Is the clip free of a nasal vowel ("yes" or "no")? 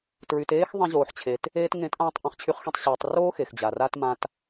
no